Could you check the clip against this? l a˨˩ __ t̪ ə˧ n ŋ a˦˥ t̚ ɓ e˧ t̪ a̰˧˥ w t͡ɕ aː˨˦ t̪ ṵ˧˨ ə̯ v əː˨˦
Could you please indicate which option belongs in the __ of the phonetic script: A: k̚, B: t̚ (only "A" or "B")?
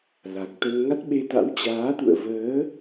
A